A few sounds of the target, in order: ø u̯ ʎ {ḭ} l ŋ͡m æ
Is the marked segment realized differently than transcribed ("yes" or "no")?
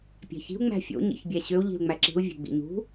yes